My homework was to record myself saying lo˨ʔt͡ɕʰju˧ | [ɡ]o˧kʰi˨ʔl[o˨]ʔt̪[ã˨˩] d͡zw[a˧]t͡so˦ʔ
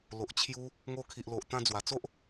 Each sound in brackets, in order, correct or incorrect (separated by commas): incorrect, correct, incorrect, incorrect